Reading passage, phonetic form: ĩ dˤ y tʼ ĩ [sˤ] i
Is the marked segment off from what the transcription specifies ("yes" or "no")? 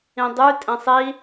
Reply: no